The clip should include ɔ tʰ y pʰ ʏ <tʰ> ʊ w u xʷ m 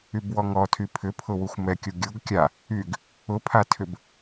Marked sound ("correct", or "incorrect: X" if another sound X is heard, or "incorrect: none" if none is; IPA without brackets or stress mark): incorrect: pʰ